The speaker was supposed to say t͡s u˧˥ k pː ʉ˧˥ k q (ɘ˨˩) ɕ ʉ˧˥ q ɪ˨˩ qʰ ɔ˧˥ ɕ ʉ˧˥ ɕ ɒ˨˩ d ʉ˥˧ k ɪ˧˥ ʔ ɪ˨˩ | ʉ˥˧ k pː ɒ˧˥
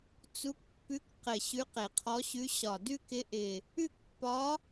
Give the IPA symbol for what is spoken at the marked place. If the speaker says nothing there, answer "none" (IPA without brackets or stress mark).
ɘ˨˩